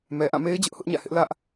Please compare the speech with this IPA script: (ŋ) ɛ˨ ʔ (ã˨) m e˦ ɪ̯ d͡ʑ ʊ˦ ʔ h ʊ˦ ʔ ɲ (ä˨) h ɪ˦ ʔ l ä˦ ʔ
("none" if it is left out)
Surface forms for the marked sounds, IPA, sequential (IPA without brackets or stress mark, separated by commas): m, ã˦˨, ä̰˦˨